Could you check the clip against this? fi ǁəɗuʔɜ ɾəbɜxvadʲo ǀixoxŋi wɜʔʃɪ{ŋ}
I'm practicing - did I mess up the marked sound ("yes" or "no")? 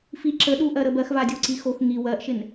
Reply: yes